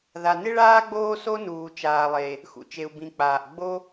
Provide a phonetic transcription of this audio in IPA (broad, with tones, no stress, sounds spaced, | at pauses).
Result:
ð a˩ n ɪ˥ ɭ aː˥ ɡ͡b oː˥ s o˥ n uː˩ t͡ʃ aː˩ lˠ e˩ | x ṵ˩ t͡ʃ e˩ u̯ b ĩ˩ k͡p aː˩ ʔ ɡ͡b o˥